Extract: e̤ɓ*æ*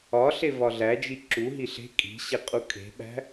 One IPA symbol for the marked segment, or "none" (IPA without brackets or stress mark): æ̤